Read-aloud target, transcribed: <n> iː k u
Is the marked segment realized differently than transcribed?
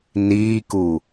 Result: no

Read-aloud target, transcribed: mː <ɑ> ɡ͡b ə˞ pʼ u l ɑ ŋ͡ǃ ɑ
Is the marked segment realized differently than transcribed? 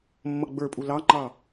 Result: yes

